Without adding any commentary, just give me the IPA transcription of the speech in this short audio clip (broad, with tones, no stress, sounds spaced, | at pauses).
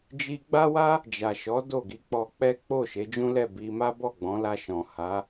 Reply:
d͡ʒ i˧ ɡ͡b a˦ w a˦ | d͡ʒ a˨ ʃ ɔ˨˦ d o˦˨ ɡ i˧ k͡p ɔ˧ k͡p ɛ˦ k͡p o˦˨ ʃ e˨˦ d͡ʒ ũ˦ l ɛ˦˨ b i˧ m a˦ b ɔ˦˨ ɡ͡b ɔ̃˨˦ l a˧ ʃ ɔ̃˨ h a˨˦